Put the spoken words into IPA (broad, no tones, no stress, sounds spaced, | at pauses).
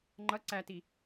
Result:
ŋ͡ǃ ʌ ǀ æ t i